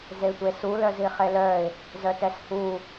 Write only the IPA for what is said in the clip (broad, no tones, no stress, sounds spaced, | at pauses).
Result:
z e tʷ e s u l œ z i χ e l œ ɪ̯ | z œ t ɛ s h u